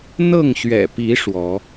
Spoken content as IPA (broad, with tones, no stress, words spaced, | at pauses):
n̪ɤ˥˨ŋɕɥɛ̰˨˩ pi˨˦ ʂwɔ˨˦